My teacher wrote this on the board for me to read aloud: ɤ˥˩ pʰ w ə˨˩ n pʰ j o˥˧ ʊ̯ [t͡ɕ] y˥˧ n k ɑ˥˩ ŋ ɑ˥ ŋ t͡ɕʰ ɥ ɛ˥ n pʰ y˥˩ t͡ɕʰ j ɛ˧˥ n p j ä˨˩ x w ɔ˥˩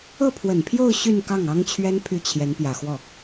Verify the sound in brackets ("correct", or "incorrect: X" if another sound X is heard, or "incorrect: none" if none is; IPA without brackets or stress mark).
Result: incorrect: ɕ